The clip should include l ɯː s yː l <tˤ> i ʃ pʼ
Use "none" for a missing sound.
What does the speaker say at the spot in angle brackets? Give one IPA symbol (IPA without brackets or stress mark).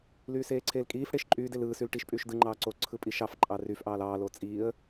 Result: ʈ